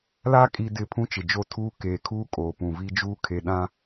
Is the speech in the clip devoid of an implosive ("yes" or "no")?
no